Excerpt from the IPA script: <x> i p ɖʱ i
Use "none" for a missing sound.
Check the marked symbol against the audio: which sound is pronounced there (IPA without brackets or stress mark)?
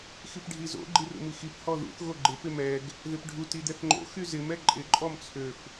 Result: x